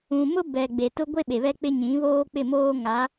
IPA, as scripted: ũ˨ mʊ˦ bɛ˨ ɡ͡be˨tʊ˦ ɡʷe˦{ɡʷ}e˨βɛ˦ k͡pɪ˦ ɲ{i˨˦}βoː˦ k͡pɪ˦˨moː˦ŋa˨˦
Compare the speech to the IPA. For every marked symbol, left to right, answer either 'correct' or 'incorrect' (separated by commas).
incorrect, incorrect